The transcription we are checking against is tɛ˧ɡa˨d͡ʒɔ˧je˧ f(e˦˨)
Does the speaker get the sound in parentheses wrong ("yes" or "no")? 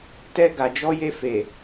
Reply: yes